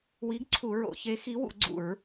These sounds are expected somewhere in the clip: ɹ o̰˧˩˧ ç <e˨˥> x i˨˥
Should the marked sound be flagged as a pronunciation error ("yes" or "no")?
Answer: no